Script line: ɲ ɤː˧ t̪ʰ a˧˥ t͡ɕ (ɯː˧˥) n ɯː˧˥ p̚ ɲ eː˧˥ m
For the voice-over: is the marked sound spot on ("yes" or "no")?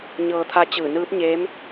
no